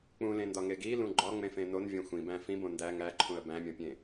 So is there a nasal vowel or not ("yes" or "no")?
yes